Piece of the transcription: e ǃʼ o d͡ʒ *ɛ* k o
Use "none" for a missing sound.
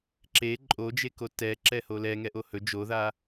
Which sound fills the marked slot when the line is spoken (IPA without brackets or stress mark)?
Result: e